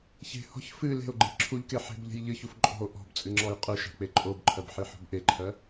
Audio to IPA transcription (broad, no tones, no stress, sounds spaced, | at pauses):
ç e̤ h ɔ̤ ç f ɨ l e̤ o̯ ɡ͡ǃ e̤ ǁʰ u ʎ k e ħ e̤ b ʎ e̤ j ʎ ɨ ç u f ǃʼ ɔ̤ o̯ ʔ ɔ̤ b t͡sʼ ɨ ŋ͡ǁ ɔ j qʼ ɨ ʃ a̤ k͡p e ǃʼ o b ǃʰ ɜ b ħ i ħ ɔ̤ b ʔ e ǃʰ ɜ